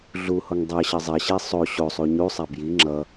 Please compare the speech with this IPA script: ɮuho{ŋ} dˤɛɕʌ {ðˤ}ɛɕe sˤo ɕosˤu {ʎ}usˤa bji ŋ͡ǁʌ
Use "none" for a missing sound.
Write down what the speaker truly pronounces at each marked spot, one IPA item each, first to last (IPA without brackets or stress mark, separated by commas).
ŋ, zˤ, ɲ